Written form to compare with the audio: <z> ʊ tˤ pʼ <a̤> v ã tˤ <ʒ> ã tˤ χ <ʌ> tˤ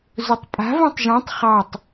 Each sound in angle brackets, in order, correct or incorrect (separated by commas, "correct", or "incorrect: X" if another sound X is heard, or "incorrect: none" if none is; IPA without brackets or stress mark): correct, correct, correct, incorrect: ɑ